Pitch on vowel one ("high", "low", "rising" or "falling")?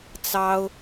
high